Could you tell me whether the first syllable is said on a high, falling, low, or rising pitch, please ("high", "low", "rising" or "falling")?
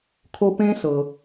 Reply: high